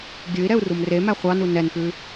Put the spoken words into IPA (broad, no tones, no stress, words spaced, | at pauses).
ɡʲʉi̯ɾɛu̯ rumremæ χʷɑnu nɛnpʉ